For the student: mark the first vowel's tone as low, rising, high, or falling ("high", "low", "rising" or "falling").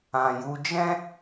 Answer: low